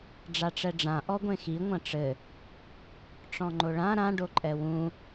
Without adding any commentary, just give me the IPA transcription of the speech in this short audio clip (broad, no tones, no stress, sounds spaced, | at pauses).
ɖ͡ʐ a ʈ͡ʂ ɛ ɖ͡ʐ ã ʔ ɔ ɡʷ ẽ x i ŋʷ ɐ̃ ʈ͡ʂ ɘ | ʈ͡ʂ ɔ̃ ŋ͡ǃ o ɭ ã ɾ ã ɖ o ǃʼ ɛ w ũ